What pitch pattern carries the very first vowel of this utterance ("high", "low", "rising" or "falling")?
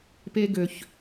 high